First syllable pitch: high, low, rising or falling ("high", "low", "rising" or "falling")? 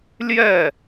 falling